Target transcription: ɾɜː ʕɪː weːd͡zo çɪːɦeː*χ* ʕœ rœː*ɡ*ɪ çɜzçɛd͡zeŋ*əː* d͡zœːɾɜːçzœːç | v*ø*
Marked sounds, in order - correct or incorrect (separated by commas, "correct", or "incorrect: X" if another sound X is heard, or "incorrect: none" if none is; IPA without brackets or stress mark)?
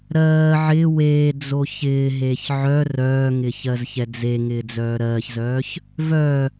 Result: incorrect: ç, incorrect: ŋ, incorrect: ɪː, incorrect: œ